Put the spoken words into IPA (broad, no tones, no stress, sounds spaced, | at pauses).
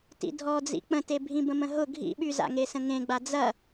t ḭ dʱ ɔ d͡z ḭ k͡p ə̃ t e bʱ ĩ b ə̃ m ə̃ ɦ ʊ ɡʱ ḭ ɓ y z a̰ ŋ e s ə̃ ŋ ẽ ɡ͡b a d͡z ɐ